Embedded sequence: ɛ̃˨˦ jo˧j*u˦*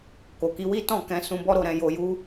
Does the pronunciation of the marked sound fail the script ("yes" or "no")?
no